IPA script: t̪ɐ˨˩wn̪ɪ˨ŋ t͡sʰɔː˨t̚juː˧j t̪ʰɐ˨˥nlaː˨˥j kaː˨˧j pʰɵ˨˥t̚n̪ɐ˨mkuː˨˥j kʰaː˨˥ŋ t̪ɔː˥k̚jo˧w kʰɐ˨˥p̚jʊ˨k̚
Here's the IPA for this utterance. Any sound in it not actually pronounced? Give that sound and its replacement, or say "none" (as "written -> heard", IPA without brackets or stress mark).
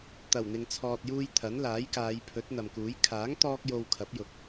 none